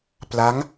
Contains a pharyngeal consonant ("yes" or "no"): no